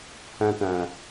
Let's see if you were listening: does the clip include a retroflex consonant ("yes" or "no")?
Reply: no